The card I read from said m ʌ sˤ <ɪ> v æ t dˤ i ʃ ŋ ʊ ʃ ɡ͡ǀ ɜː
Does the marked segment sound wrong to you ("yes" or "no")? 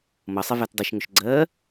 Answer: no